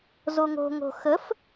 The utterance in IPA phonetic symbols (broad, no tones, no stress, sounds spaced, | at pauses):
z o ŋ o̤ ŋ o̤ x ə f